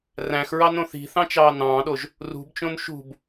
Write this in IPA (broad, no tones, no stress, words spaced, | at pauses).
ræ̃xɹɑnõ θi̤θɑ̃t͡ʃɑː nɑ̃ːɗoʒ | rṳbt͡ʃõn ʃṳb